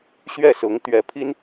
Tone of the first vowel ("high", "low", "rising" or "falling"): falling